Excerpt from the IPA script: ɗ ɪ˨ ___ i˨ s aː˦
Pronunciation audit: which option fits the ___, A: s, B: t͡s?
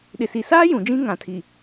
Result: A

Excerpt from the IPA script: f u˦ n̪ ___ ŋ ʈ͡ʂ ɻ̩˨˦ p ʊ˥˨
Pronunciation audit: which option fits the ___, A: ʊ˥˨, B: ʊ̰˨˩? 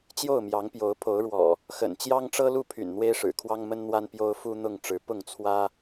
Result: A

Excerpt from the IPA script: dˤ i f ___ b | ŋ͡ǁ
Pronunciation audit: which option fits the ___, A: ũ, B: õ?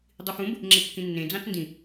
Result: A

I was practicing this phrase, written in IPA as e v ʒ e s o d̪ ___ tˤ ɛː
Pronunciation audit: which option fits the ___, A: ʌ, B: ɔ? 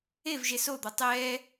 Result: B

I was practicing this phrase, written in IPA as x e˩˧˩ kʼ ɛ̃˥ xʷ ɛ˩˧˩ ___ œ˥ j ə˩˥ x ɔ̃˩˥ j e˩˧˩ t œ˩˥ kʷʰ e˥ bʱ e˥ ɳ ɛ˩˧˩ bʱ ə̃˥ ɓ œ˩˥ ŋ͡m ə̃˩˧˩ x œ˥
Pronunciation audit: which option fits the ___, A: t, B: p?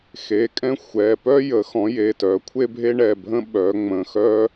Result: B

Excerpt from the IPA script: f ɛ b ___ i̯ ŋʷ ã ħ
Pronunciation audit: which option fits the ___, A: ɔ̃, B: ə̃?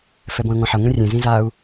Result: A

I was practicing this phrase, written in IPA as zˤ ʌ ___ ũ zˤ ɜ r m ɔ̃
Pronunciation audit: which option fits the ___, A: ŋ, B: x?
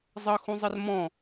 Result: B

